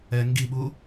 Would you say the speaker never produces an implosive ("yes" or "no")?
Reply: no